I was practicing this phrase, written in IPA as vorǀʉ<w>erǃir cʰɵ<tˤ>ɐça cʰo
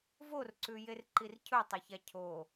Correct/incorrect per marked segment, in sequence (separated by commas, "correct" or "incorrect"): incorrect, correct